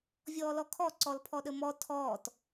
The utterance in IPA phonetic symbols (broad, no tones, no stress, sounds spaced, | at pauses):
vʲ ɔː l ɔ kʰ ɔ ǀ ɔ l pʰ ɔ ɗ ə m ɔ tʰ ɔː t